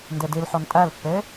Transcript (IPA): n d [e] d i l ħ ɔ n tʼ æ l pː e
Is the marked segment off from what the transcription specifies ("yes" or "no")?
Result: no